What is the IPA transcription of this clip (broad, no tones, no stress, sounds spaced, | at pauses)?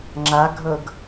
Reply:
ŋ͡ǁ a ɡʱ ɤ ɡ